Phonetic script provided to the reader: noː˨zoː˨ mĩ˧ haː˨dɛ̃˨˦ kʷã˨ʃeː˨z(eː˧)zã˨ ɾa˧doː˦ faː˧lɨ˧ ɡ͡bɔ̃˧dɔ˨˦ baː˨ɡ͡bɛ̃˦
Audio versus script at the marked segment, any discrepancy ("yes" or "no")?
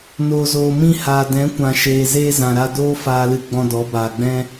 no